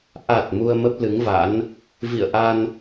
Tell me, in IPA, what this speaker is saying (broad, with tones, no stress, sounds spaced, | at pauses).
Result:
ʔ a˨˩ t̚ m u˧ ə̯ m ə˦˥ p̚ l ɨ˨˦ ŋ v a̰˧˥ n | v ḭ˧˨ ə̯ ʔ a˧ n